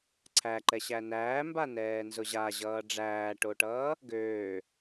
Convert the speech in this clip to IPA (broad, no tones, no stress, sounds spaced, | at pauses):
ǀʰ æ ǃ ɛ ɕ æ n æː m b a n ɛː n z ʊ ʑ a ʑ ʌː ɖ͡ʐ æː ʈ o ʈ ʌː | ɡ øː